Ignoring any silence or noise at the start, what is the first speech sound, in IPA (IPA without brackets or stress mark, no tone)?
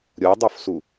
ɾʲ